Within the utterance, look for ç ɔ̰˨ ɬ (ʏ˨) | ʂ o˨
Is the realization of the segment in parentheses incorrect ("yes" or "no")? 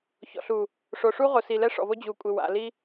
yes